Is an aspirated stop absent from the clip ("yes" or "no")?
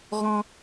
yes